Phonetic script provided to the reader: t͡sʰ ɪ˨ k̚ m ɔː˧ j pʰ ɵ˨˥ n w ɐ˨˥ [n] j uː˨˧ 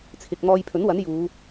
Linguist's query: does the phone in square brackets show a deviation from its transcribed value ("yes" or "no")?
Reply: no